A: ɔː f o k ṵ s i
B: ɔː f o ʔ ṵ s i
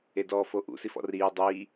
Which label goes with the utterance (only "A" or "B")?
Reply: B